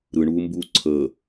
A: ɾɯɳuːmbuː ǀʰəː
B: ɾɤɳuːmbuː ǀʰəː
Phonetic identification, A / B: A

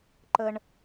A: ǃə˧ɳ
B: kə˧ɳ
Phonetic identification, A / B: A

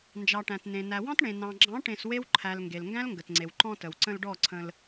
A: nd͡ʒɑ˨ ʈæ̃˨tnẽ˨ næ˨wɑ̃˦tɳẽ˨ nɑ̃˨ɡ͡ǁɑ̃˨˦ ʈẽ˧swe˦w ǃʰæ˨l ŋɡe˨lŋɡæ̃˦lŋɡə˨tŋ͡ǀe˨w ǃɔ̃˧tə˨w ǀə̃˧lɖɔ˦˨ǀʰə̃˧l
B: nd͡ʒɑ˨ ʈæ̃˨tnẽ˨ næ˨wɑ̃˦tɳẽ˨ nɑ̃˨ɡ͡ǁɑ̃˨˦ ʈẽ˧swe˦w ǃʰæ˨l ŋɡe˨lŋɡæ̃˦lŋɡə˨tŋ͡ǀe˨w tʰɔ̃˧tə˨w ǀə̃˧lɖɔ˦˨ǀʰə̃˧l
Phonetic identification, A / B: A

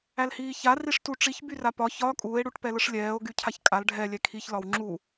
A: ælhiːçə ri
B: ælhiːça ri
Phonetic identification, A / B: B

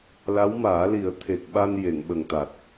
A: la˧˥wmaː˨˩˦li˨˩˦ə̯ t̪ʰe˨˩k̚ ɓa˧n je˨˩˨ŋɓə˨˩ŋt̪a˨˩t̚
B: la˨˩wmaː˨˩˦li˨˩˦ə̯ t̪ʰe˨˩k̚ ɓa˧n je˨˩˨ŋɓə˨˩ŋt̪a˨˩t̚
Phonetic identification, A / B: A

